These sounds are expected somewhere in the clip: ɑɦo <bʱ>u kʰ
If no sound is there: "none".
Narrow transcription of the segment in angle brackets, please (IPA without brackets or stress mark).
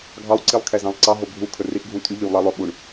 bʱ